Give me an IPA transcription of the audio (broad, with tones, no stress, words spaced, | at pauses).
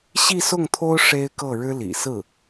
ɕi˥˧sʊ˥˩ŋt̪ʰo˥ʊ̯ ʂe˥ɪ̯kɤ˥˩ ɻɻ̩˥lḭ˨˩sɹ̩˥˩